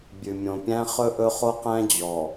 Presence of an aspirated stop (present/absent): absent